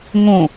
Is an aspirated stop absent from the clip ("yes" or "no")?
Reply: yes